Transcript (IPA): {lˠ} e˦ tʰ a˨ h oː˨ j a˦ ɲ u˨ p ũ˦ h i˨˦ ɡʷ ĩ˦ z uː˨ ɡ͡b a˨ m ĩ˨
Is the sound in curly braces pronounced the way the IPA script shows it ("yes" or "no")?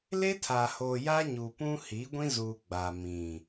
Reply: no